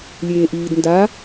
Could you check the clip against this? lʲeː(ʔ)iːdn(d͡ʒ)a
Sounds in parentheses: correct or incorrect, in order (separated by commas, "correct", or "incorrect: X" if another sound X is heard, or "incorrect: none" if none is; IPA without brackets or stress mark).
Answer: correct, incorrect: d